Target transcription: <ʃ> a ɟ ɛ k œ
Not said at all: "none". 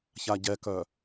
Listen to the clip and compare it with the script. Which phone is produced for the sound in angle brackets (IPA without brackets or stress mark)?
ç